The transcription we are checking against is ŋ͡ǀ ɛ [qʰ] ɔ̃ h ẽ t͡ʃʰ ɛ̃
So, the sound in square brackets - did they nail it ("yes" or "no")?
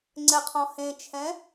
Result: yes